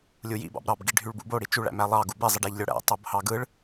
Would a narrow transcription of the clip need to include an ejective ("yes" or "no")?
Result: no